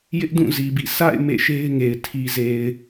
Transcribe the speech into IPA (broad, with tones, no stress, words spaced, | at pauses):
jɪ˦ʔdũ˦˨zi˨bḭ˦˨ sa̰˦˨ɪ̯ mḛ˦˨ʃe˦ɪ̯ŋe˨ɪ̯ tʰi˨ze˨ɪ̯